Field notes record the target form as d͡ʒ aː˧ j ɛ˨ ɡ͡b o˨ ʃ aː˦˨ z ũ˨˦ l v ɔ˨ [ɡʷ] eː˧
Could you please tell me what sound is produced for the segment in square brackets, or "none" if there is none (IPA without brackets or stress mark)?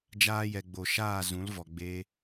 ɡ͡b